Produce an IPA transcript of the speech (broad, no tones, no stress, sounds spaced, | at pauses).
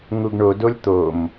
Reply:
ŋ u ɡ ɳ o d o lʲ t̪ o m